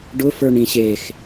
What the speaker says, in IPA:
ɖʊ fə˞ɳĩɕex

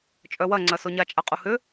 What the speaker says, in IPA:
t͡ʃʼœwɐŋ͡ǀɐ soɲat͡ʃʼaqʼu hʏ

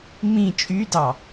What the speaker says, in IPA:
mĩ t͡ʃʼydɑ

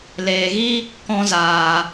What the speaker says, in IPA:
leː˨ɣi˦ | kɔ̃˧zaː˨

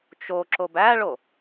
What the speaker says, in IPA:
t͡ʃo ǁobæɭo

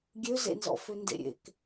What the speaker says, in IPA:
ɡʲøzḛnzɔ̰fø ndḛɾʲḛk

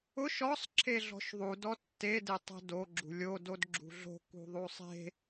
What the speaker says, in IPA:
ʊʃ ɔsˤ ǁʰeɮɔ̤ʃðˤud ɔtːe detˤɛ̤do ɡ͡ǁṳlʲo dodɡ͡ǁṳɮo̤ kṳðˤusˤe̤

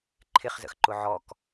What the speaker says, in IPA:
ǃʰɪχzə̰x ǃʊʕɔk

